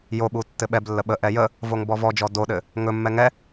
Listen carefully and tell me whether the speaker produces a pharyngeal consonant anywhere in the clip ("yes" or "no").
no